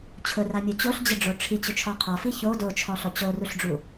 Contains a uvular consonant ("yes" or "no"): yes